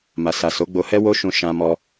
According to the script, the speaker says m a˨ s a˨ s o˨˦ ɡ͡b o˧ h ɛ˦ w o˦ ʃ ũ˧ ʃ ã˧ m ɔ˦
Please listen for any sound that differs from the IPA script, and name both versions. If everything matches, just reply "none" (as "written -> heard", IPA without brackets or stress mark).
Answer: none